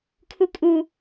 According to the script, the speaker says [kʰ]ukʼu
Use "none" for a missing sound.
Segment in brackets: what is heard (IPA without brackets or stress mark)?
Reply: kʰ